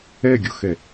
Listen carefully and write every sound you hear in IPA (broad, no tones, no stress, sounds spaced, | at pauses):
ɛ ɡʲ o x ɛ